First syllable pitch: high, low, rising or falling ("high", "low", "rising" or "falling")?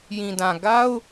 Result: low